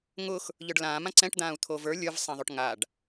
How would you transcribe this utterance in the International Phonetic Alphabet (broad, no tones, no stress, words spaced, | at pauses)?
ŋʊx | ʎə˞ɖlãːmã ǀɛ̃ʈd̪ãːu̯ t̪ʰovə˞ lʲə˞vsˤɛ̃ðˤoʈ ŋaɖ